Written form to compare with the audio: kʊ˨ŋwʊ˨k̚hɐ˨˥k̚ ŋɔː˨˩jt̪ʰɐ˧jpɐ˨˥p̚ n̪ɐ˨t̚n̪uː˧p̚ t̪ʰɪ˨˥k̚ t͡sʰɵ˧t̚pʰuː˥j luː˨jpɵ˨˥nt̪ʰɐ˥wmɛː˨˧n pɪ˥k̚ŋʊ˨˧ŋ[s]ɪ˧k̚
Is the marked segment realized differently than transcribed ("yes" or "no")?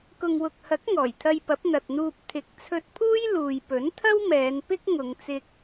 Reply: yes